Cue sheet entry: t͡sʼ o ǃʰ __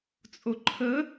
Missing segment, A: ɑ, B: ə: B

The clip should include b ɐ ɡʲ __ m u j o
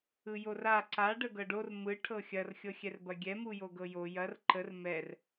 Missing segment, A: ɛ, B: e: A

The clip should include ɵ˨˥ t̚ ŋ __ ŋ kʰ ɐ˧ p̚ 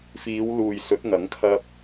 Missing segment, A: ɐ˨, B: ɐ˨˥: B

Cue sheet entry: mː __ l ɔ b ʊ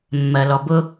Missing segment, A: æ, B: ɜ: B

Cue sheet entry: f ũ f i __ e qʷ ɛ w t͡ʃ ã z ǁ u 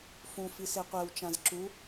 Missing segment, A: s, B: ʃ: A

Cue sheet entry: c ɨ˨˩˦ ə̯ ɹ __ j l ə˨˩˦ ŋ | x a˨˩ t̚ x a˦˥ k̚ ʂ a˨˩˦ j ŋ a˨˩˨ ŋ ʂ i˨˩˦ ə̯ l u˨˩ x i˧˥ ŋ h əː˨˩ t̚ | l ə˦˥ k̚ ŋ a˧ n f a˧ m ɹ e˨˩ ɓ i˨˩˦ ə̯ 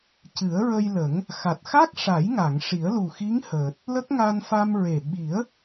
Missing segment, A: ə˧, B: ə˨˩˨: A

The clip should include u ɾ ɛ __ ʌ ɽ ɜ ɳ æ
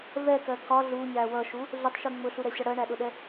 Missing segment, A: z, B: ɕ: B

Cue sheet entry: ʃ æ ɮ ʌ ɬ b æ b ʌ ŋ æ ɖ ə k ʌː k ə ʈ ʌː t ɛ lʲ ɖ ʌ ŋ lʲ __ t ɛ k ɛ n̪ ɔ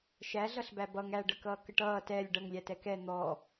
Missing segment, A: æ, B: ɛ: A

